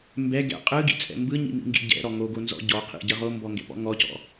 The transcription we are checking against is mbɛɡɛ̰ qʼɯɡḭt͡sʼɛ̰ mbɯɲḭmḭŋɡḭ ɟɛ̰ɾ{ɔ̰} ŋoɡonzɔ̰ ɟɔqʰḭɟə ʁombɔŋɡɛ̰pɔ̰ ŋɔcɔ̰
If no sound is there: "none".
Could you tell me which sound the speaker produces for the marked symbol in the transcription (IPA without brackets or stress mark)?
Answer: ɔ